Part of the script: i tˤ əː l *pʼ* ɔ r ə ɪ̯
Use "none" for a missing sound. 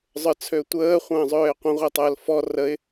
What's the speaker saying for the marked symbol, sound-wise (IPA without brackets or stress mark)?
f